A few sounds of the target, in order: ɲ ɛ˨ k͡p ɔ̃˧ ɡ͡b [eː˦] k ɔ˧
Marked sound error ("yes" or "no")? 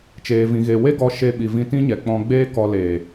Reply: no